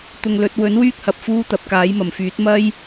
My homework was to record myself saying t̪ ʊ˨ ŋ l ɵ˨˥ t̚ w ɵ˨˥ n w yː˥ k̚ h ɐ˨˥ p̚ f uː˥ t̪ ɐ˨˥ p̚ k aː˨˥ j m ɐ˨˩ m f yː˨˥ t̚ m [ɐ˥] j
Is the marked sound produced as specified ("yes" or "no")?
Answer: yes